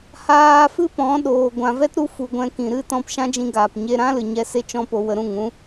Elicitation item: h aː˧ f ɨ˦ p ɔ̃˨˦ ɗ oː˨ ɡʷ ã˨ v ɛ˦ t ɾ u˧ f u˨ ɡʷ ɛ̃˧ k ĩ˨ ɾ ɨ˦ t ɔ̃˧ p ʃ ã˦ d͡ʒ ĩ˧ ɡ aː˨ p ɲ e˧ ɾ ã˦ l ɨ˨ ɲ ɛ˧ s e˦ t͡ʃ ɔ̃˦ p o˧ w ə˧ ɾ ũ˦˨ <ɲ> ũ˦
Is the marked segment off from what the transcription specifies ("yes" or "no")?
yes